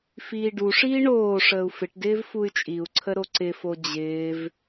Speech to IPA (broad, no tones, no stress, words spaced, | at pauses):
fiːɖuʂiː ɳoːʂəːu̯ fɪʈdɪːv fuy̯t͡ʃʼiu̯ǀʰə ɾoǀɪfo d͡ʑɪːv